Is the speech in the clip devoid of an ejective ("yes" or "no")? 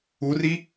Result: yes